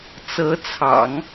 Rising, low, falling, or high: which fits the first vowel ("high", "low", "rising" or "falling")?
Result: rising